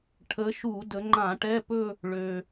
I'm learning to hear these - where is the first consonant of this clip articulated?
retroflex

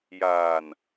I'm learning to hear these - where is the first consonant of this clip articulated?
palate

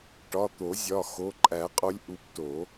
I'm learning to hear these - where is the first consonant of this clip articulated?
retroflex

